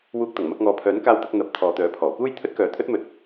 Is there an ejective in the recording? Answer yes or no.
no